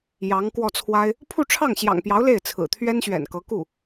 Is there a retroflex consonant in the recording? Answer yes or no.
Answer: yes